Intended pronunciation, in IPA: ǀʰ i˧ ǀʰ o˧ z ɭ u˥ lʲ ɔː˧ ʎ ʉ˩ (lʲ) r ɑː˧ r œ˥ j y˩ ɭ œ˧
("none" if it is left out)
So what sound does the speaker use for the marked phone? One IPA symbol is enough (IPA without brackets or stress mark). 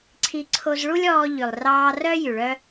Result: lˠ